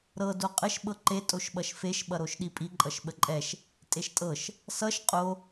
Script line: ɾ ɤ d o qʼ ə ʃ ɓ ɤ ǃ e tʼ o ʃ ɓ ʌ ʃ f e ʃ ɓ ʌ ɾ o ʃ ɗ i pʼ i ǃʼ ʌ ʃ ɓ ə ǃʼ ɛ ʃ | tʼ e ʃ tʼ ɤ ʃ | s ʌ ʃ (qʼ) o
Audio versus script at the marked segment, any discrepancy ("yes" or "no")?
no